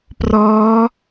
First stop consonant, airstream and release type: plain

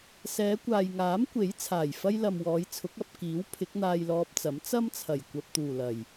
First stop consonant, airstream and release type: plain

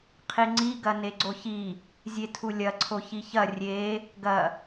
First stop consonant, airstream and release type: aspirated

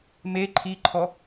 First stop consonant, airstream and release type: click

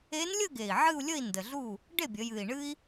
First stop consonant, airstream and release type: plain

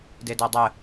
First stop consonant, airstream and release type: plain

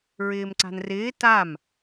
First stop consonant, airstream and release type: click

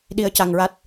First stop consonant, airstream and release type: implosive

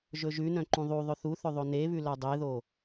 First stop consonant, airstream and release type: click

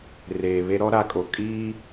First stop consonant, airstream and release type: ejective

